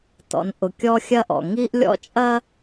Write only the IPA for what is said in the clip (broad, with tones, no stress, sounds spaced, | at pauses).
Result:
t ɔ̰˨ n ʔ ʊ˨ kʲ ɔ˦ xʲ ɐ˦ ʔ ɔ̰˨ ŋ i˦ ʔ lʲ ɔ̰˦ t͡ʃʼ ɐ˦